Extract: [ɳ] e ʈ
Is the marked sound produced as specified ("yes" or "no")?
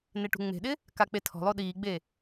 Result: no